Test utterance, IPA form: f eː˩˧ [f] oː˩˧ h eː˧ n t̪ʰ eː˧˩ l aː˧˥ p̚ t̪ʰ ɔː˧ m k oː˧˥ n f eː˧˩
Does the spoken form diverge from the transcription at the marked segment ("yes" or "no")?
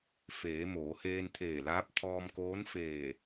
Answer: yes